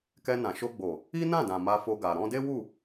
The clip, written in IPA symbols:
k ɛ˧ n ã˨ ʃ o˧ ɡ͡b o˨ | i˦ n ã˦˨ d ã˨ m a˧ f o˧ ɡ a˨ ɾ ɔ̃˧ d e˦ w u˦˨

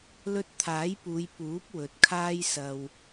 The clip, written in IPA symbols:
l ɵ˧ t̚ t̪ʰ aː˨˥ j p uː˨˧ j p uː˨˥ p̚ w ɵ˨˥ t̚ kʰ aː˥ j s ɐ˧ w

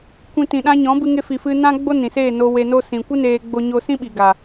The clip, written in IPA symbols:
kʷ ĩ˨ t ĩ˨ ɗ ã˧ ɲ ɔ̃˨˦ b ɨ˧ ŋ e˧ f i˨ f ɨ˧ n ã˦ ɡ͡b o˦ n ĩ˨ s eː˦˨ n o˧ w e˧ n o˦ s ĩ˨ kʷ ɨ˦ n eː˧ ɡ͡b o˦ ɲ o˦ s ĩ˦ ɓ i˨ ɡ a˨

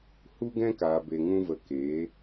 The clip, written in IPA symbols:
h u˦ ɡ ɛ̃˦ k aː˨ b e˨ ŋ ũ˧ v ə˨ k eː˨˦

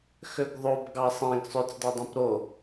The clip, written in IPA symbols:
x ø ɡ ðˤ o b ɡ ɑ sˤ ẽ ɡ sˤ ø t͡s d ɑ dˤ ẽ p ɾ o

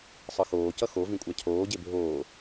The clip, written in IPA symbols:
sˤ ɯ x oː c ʌ x o v ĩ kʷʼ a cʰ oː ɟ e bʱ oː

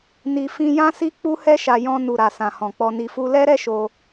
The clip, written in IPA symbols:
n i˧ f ĩ˧ j ã˦ s i˦ k͡p u˦ h ɛ˦ ʃ a˧ j ɔ̃˧ n u˨ ɾ a˨ s ã˨ h ɔ̃˨ k͡p ɔ˧ n i˧ f u˦ l ɛ˦ ɾ ɛ˦ ʃ o˧

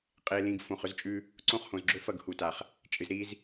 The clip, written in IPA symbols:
qʼ e˨ l ĩ˨ ɡ f õ˨ χ ɵ˦ z t͡ʃʼ ʉ˦ | ǀ õ˦˨ χ h õ˨ z ɡ͡ǁ ɵ˦ f ɐ˦˨ ɡ h u˨ t a˨ χ | t͡ʃʼ ɨ˨ z ɾ i˦ z

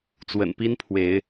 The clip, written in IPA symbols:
t͡s w ə̰˨˩ n p i˦ n pʰ w e˨˦ ɪ̯

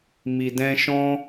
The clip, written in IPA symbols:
m i˨ d ɛ̃˧ ʃ ɔ̃˦

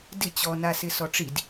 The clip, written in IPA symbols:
d ɪ t͡ɕ ɔ n a s ɪ s ɔ ʈ͡ʂ i d

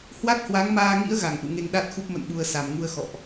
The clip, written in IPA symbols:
h w a˦˥ t̚ h w a˨˦ ŋ m aː˧ ŋ ḭ˧˥ ə̯ ɣ a˧˩ ŋ ʔ ṵ˧˨ ŋ e˧ ŋ ɗ a˦˥ t̚ x u˦˥ p̚ m ə̰˧˨ n ɓ u˨˩ ə̯ s a˨˩ m ŋ u˧ ə̯ x ɔ̰˧˨ ʔ

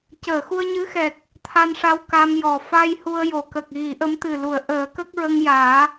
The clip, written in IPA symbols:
c əː˨˩˨ x u˧ ə̯ ɲ ɨ˧˥ x ɛ˨˩ k̚ | t̪ʰ a˧ n ʂ a˧ w k a˧ m j ɔ˨˩ f a˧ j h u˧ ə̯ j o˨˩˨ k ə˨˩ k̚ ɣ i˨˩˦ ʔ ə˧˥ m t̪ ɨ˨˩ l u˨˩˨ ə̯ ʔ əː˨˩˦ k ə˦˥ k̚ ɹ ə˧ ŋ j aː˨˩˦

